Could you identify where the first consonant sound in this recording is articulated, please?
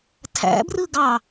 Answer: alveolar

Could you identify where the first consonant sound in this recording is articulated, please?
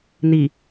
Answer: alveolar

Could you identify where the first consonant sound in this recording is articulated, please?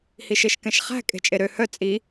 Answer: glottal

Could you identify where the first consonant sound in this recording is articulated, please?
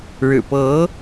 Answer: retroflex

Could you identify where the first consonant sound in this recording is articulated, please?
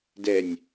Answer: alveolar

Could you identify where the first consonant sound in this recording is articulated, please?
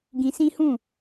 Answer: velar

